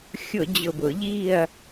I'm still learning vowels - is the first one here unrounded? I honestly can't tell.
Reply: no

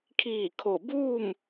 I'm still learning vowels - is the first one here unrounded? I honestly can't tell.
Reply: yes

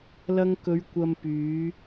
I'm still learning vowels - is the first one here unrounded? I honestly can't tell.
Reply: yes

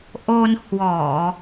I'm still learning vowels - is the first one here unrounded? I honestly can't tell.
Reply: no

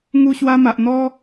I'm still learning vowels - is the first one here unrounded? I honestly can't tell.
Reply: no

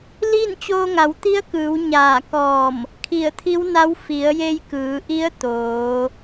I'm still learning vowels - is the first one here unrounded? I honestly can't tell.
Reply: yes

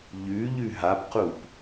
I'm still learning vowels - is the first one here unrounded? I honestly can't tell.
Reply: no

